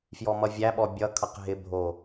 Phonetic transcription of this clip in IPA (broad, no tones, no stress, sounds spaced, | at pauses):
f j ɔ m ʌ vʲ æ ɓ ɔ bʲ ʌ kʰ ʌ q ɦ ɪ bʱ o